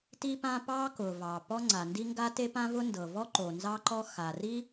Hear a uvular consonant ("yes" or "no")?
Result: no